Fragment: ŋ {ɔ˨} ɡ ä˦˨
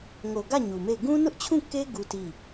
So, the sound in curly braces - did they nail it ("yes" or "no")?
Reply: no